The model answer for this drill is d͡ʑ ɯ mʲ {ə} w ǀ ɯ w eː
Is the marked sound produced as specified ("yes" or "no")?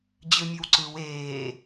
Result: no